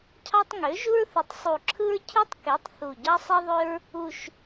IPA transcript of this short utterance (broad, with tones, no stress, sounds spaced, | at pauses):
cʰ ɑ˦ tˤ ŋ ø˩˥ ʒ u˦ ɹ θ ɯ˩˥ tˤ sˤ u˨˩ ǁʰ ɯ˦ ɹ cʰ ɯ˦ tˤ k e˩˥ tˤ θ u˨˩ ɟ ɑ˦ sˤ e˦ ðˤ ø˦ ɹ | u˨˩ ʃ